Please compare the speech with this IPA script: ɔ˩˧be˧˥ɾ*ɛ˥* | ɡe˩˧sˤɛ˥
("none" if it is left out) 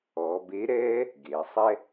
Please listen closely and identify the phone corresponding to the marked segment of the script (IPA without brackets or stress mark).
ɛː˥